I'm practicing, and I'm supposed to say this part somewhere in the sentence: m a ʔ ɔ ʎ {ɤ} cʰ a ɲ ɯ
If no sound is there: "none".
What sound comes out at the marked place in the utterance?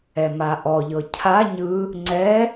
ɤ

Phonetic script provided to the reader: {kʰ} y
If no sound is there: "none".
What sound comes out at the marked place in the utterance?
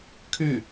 kʰ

